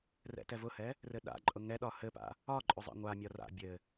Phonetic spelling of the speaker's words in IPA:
rɛ̰tɛvʊhɛ | rɘɗa̰ǃʼʊ ŋɛ ɗɒhɘpa̰ | ɒǃʼʊ zˤɛ̰ŋʷamʲɒ ra̰ bʲɘ

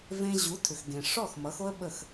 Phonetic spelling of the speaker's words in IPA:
vẽ˧ ʑu˩˥tʰʏ˩xɡẽ˩ʂɔ˥˩x mʌ˩˥xo˥ə̯ ɓə˥˩x

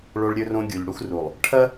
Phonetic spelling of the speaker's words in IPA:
ɭo˦ɭɾʲɵ˦rõ˦ ɡʲu˨ʎɽu˦x ru˨lˠ | ʈʰɐ˦

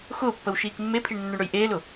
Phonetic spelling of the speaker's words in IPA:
xʊːpːəw ʃiːkmːepʰiɳ nːɵɳɽɵjʔeːlʊ

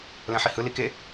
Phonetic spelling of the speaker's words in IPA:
lɛ̃ħihɯ like

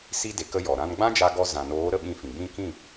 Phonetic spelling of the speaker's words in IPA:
si˦de˨˦k ə˦jɔ˨ ɾã˧nɡ͡bã˦d͡ʒa˧ɡɔ˧ zã˨noː˨˦ ɾə˧ɓĩ˧fĩ˨ ɡ͡bĩ˧ kĩ˦˨

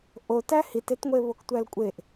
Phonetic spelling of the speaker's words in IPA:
ʔotæ hitetŋʷe βoktʷælkʷʼeʔ

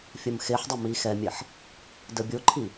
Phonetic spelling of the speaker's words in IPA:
fʲɐmxeħdˤɪ mixɛmʲɛħ | dəbʲoǃʰi

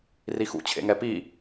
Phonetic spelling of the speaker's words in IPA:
rixṵ t͡ɕʰḛŋɛpi

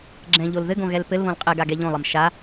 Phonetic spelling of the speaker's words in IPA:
ɡ͡ǁɛ̃ʎol ðɘɡõ ɣɛlpɘlβõl qʼɛɡa ɡɛʎõlˠəm ʃa

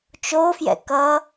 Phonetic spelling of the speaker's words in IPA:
t͡ʃofjɛ̰ kʌ

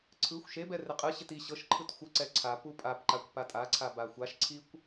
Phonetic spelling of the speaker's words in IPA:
ǀʰɯxʷ ʃebɛ reqʼɯɕɪt i ɕɤʃǃʰɯt xʷəǀɛ ǀʰapu pʼapǃakʷ patʼaǀʰa baxʷaʃǀʰikʷ

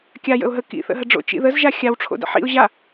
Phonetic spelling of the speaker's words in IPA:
kʲa jə̰ʊ̯ɦə kḭθə̰ɦə ɖ͡ʐo̰t͡ʃḭ ðəzʒa xʲawʈ͡ʂʰo̰ də̰ħḭʊ̯ ʑa

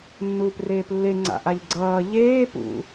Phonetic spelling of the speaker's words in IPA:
nːuːpreːplːe ŋ͡ǀa̰ʔ aʎɡ͡ǀʌː ʎeː pṵ

